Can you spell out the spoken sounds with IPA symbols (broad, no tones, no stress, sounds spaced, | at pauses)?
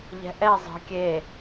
ʎ ɛ̤ ʔ ɛ zˤ ə̤ kʲ e